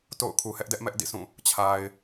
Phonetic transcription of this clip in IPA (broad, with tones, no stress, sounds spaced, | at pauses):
t o̰˦˨ ʊ̯ kʰ u˨ h ɛ˦ ʔ d ɛ˦ ʔ m ɛ˦ ʔ d ḭ˦˨ sʰ ũ˦˨ | t͡ɕʰ a˨ ɪ̯